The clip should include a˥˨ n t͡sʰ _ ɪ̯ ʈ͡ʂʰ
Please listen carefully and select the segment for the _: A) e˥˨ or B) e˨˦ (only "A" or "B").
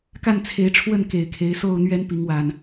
B